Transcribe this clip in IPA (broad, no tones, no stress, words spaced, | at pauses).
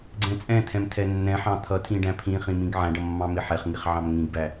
ɡ͡ǀɛ̃t͡sʼɛ̃tʰɛ̃m tʰɛnːɛ̃ħɑ̃ t̪ʰʌtʰĩ ɖæ̃pʰĩχĩ mĩɡʕæ̃ɖʌ mːɑ̃mɪħɛχŋiχ ʕɑ̃mŋĩɡbæ